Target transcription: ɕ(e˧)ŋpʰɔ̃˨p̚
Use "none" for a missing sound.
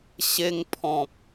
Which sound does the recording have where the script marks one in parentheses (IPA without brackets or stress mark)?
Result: e˧